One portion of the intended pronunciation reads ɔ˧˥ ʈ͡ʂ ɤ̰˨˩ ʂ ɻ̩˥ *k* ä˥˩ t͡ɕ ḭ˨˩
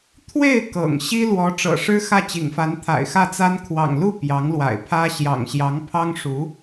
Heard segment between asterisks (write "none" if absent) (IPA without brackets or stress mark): x